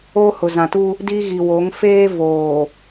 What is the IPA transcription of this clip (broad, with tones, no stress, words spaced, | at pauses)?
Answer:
oː˦hʊ˨zã˨tu˦ | di˦ɣi˨ wo˨˦ŋfeː˦ voː˨